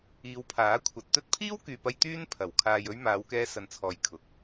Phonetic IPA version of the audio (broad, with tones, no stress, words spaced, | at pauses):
iː˨˧wpʰaː˨˥ kʷʰɐ˨t̚t̪ɵ˥t̚ pʰiː˥wkyː˨pɐ˧j t̪yː˥n pʰɐ˨˩w kʰaː˨jɵ˧ɥ maː˨˧wkɛː˧sɐ˨nt͡sʰɔː˨j kʰʊ˨˥k̚